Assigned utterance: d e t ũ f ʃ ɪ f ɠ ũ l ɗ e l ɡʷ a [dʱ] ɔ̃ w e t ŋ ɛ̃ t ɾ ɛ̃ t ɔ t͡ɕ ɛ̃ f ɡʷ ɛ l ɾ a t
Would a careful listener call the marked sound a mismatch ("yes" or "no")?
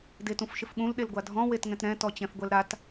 no